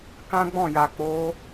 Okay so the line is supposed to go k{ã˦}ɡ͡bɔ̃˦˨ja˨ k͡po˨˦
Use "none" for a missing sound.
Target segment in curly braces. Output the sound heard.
ã˦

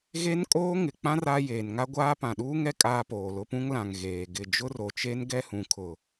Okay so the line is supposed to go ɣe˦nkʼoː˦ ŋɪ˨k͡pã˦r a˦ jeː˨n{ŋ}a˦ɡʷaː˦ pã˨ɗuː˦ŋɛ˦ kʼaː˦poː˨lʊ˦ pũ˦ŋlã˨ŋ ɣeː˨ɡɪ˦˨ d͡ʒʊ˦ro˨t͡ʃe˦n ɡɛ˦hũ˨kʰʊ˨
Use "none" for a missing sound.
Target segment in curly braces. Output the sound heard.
ŋ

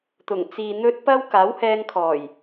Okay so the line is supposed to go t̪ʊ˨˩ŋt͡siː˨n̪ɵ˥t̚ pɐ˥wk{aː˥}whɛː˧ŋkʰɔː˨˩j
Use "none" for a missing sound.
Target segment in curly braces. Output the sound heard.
aː˨˥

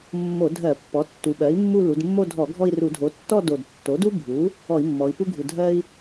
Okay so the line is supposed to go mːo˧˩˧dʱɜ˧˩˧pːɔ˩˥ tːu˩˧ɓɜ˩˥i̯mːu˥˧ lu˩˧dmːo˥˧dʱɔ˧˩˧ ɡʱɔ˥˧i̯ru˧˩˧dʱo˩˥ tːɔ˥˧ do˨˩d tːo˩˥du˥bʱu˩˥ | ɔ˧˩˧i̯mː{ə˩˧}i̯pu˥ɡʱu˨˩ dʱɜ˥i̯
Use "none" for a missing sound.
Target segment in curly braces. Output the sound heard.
ɔ˩˧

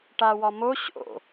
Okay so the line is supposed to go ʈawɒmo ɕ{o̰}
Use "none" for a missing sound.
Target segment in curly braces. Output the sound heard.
o̰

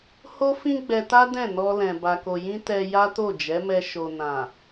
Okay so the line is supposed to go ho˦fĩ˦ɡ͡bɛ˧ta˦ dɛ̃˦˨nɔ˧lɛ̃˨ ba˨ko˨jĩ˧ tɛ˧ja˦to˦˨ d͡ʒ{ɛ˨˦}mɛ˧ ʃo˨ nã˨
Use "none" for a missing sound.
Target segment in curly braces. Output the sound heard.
ɛ˨˦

